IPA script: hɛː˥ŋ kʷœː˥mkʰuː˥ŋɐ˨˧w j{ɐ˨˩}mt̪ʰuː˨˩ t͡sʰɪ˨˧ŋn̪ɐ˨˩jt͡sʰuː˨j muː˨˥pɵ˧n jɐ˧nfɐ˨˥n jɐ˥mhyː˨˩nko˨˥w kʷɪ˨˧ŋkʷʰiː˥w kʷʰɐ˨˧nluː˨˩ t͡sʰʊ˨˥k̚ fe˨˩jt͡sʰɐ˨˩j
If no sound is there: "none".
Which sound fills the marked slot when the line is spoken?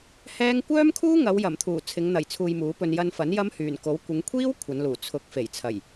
ɐ˨˩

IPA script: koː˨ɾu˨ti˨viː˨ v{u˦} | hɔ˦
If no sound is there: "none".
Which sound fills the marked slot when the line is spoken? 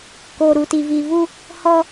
u˦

